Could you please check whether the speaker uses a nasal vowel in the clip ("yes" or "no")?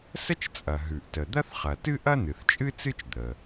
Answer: no